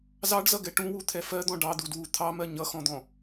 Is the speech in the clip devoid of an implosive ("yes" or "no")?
yes